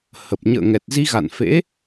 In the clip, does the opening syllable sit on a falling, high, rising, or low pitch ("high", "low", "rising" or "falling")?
low